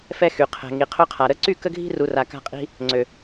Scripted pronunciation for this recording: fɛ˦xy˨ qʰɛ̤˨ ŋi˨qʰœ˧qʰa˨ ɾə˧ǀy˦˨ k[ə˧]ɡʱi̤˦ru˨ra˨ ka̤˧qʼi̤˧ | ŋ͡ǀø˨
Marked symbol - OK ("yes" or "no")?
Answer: no